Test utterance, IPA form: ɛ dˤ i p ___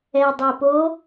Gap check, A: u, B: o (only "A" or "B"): B